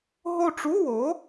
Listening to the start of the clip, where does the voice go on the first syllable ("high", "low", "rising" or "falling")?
falling